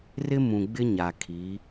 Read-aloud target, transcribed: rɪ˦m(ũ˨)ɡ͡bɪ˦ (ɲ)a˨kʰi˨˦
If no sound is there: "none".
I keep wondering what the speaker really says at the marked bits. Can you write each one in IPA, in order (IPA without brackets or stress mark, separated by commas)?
ũ˨, ɲ